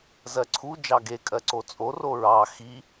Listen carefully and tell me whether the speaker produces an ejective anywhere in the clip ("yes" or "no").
yes